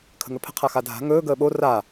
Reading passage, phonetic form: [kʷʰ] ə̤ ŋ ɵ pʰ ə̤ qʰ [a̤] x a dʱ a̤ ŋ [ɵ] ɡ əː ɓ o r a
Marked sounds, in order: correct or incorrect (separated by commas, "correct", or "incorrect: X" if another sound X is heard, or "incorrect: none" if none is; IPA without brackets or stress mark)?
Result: incorrect: kʰ, incorrect: a, incorrect: ɵː